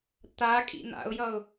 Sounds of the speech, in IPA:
t̪ a kʼ ḭ n̪ a̰ ʊ̯ j ʌ ʊ̯

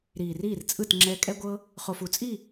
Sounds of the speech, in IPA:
ɾ iː˨ r iː˦˨ r t͡sʼ ɯ˦˨ t ŋ͡ǁ ɛː˧ kʼ ɛ˦ ɡʷ ɤ˦ | χ o˨ f u˨ t͡sʼ i˦˨

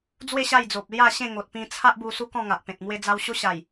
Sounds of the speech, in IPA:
d͡z w e˥˧ ɕ a˥˧ j d͡z o˨ p̚ l j a˥˧ ɕ ẽ˥˧ ŋ o˨ t̚ p ĩ˧ t͡sʰ a˦ ʔ b u˧ s u˦ k ɔ̃˥˧ ŋ a˨ ʔ p ẽ˨ t̚ m w e˦ d͡z a˦ w ɕ o˦ ɕ a˨˩ j

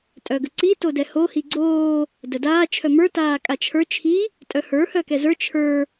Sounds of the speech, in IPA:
tʼ œ ɡ ə ǀ i t o d ɛ h o h i ɡ͡ǀ oː | d ə d aː t͡ʃʰ œ m ə˞ t aː kʼ a t͡ʃʰ ə˞ t͡ʃʰ i | tʼ œ h ə˞ h œ k ɛ z ə˞ t͡ʃʰ ə˞

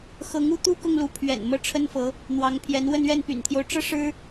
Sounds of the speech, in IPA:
x ɤ˧˥ ŋ u˥˧ t̪ u˥˧ k ʊ˥˩ ŋ l u˧˥ pʰ ɥ ɛ̰˨˩ n m ɤ˥˩ ʈ͡ʂʰ ə˥ n f ɤ˧˥ | n̪ w ɑ˧˥ ŋ pʰ j ɛ˧˥ n w ə˥˧ n ɥ ɛ˥˩ n p y̰˨˩ n t̪ʰ j o˦ ʊ̯ ʈ͡ʂ ɤ˥ ʂ ɻ̩˥

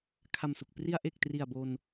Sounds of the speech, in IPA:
kʰ a˨˩ m s u˨˩ k̚ p r i˧ a̯ ʔ e˨˩ k̚ t r i˨˩ a̯ b o˧ n

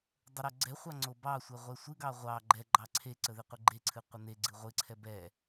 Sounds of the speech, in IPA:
dˤ ə ɾ o ɡ͡ǀ ɛ χʷ ɑ ŋ͡ǀ o b ɑ sʷ ɛ ʁʷ ɛ sʷ ɨ ɡ ɑ ʁʷ ɑ ɡ͡ǃ ɛ ɡ͡ǃ ɑ ǀʰ e ǀ ə ð e qʷ ɨ ɡ͡ǃ e ǀʰ ɨ qʷ ə n e ɡ͡ǀ ɨ ʁʷ ɨ ǀʰ ɛ b ɛ

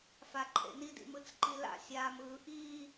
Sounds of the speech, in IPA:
f a ǃʰ ḛ n i d ḭ m ɯ t͡s ǃ i l a̰ sʲ aː m ɯː ʔ iː

